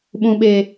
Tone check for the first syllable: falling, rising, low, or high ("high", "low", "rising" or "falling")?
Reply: low